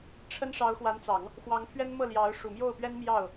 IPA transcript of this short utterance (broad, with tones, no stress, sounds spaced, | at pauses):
ʈ͡ʂʰ ə˥ n ʂ ɑ˧˥ ʊ̯ x w a˧˥ n t͡s ɑ˨˩˦ ŋ | x w ɑ˧˥ ŋ pʰ ɥ ɛ˥ n m ɤ˥˩ l j ɑ˧˥ ʊ̯ ʂ u˨˩ m j o˥˩ ʊ̯ p ɥ ɛ˥ n m j ɑ˥˩ ʊ̯